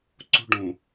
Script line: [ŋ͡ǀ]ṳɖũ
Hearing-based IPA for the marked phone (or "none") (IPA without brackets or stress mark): ǀ